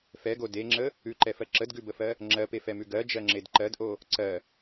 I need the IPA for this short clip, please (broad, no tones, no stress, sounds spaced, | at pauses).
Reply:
f ɛ ɡ o d e ŋ͡ǁ ə | ʉ ǃ ɛ f ɜ ǁ ə d ɡ ʉ b ə f ɜ | ŋ͡ǁ ɜ p e f ɛ m ʉ ɡ ɜ d͡ʒ ɜ ŋ͡ǁ e d ǃ ɜ d ʔ o | ǀ ɜ